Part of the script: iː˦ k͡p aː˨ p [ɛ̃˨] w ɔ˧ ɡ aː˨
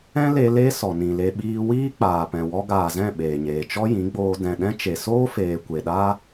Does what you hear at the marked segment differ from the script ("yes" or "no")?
no